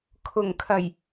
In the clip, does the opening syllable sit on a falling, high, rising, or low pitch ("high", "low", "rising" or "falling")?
low